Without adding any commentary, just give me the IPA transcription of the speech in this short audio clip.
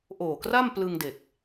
ʔ oː˨˩ k r a˥˩ m p l ɯ˧ ŋ d e˨˩ k̚

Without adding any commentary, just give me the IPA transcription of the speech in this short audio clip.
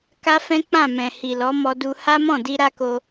k a˦ f ɛ̃˦ k͡p ã˦˨ m ɛ̃˨ h i˨ l ɔ˨˦ m ɔ˧ d u˧ h a˦ m ɔ̃˦˨ d i˧ ɾ a˦ k o˧

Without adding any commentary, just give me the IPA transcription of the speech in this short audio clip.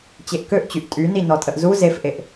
t͡ɕ e ʔ k ø ʔ t͡ɕ y ʔ tʼ y n i n ɔ tʼ ə ʔ z u z e f ʔ e ʔ

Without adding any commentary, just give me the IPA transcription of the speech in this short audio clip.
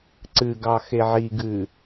ǀ ɨ ɡ ɑ x e ʕ i ɡ ɨ

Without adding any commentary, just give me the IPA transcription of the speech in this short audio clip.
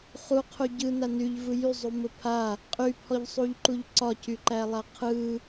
χ u qʰ u ɟ ɯ n a n y ʎ v ɯ j y zˤ u m ə pʰ a | qʼ y pʰ ɔ ʎ sˤ u ʎ ǃ u ʎ ǀ ɒ c y ǃ æ lˠ a qʰ ɯ

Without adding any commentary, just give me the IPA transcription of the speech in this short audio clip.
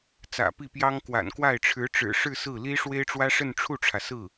t͡s ä̰˨˩ p i˥˩ p j ɑ˥ ŋ k w a̰˨˩ n k w a˥˩ ɪ̯ ʈ͡ʂʰ ɻ̩˧˥ ʈ͡ʂ ɻ̩˨˩ ʂ ɻ̩˥˧ s ɹ̩˥˩ l i˥ ʂ w e˥ ɪ̯ ʈ͡ʂ w ä˥ ʂ ə˥˧ n ʈ͡ʂʰ u˥˩ ʈ͡ʂʰ ä˩ s ɹ̩˥˩

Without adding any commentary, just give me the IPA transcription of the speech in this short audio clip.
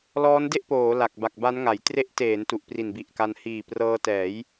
l ɔː˦˥ n d e˥˩ ʔ p oː˩˦ l a˨˩ k̚ b a˨˩ k̚ b a˦˥ n ŋ a˩˦ j t r e˦˥ ʔ t eː˩˦ n t u˨˩ ʔ p r i˨˩ n b i˨˩ ʔ k a˧ n h iː˨˩ p r ɤː˧ t ɛː˩˦ j

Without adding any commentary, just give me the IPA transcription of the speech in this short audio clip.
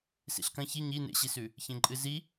s ḭ ɬ k ɐ̃ ç i ɲ i n ḛ ɕ i s ʉ | ç ẽ ǃʼ ɨ z i

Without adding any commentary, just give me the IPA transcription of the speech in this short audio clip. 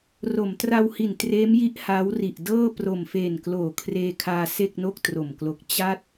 r o˩˦ m t r a˧ w h i˨˩ n t r eː˦˥ m j i˦˥ ʔ h aː˦˥ w r i˨˩ ʔ d ɤː˥˩ p r o˨˩ m f eː˨˩ n k l oː˨˩ kʰ r eː˧ kʰ aː˧ s e˥˩ k̚ n o˥˩ k̚ t r o˨˩ m k l o˦˥ k̚ t͡ɕ a˥˩ t̚

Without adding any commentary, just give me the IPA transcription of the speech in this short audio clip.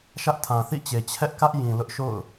ʃ ä˦ ʔ tʰ ã˨ θ ḭ˦˨ t͡ɕ e˨ t͡ɕʰ ɛ˦ ʔ k ä˦ ʔ j ĩ˨ l ʊ˦ ʔ ʃ o̰˦˨ ʊ̯

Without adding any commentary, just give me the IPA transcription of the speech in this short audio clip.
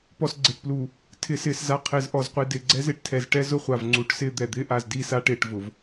p ɔ˨ s ɡ͡ǀ ɪː˨ ʈ p l uː˨ | tʰ ɪː˨ s ɪː˨ s z a˨ qʰ ɪː˨ z ʔ ɔ˨ z qʷ i˨ d ɪː˨ ɡ͡ǀ ɛ˦ z ɪː˦ ʈ tʰ ɛ˨ z ʈ ɛ˦ z ʊ˦ χʷ a˨ v ŋ͡ǀ u˨˦ ʈ s ɪː˦ d̪ ɛ˨ d̪ ɪː˦ ʔ a˨ z d i˦˨ s a˦ ʈ ɪː˨ ʈ v ʊ˨ v

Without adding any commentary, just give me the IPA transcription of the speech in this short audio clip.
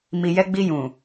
m i˨ j ɛ˧ ɡ͡b i˧ j ũ˨

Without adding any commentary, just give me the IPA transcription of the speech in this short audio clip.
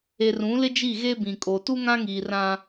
e˨ r ũ˨˦ l ɪ˦ d͡ʒ i˦˨ ɣ e˦ b ĩ˨ kʼ o˨ t u˦ ŋ ã˦ ŋ iː˨ r ã˦

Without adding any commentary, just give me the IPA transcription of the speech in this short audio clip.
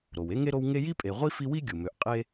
ɾ o˩ w e˥ ŋ e˥ ɾ o˦ w ŋ e˦ j i˥ pʼ e˨ ʁʷ i˥ f i˦ w i˥ ɡʲ u˩ m ø˨ ʔ qʼ e˥

